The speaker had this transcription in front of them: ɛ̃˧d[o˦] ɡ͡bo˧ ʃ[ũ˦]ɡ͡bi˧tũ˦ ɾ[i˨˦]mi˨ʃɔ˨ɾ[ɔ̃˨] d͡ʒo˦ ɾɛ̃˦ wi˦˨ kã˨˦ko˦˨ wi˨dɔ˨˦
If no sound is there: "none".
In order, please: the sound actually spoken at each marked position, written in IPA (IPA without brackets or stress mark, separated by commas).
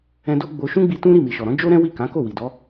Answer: o˦, ũ˦, i˦˨, ɔ̃˨˦